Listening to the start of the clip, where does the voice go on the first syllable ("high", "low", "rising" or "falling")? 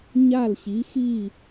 falling